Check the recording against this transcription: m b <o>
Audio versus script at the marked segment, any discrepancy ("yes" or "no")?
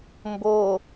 no